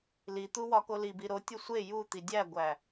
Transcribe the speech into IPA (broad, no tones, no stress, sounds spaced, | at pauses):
l i t̪ u w ɒ k o l i b i ɾ o tʲ o sʷ e j u t̪ i dʲ æ ɡʷ æ